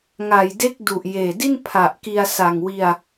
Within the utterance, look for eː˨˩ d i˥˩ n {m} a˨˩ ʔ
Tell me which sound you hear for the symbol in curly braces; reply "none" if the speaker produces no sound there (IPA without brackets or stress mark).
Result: pʰ